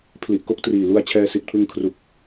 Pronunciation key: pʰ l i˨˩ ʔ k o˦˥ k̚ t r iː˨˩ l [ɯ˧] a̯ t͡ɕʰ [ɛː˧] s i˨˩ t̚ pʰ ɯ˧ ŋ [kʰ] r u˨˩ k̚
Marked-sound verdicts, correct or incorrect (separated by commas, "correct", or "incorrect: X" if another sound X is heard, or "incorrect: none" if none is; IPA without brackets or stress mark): incorrect: u˧, correct, correct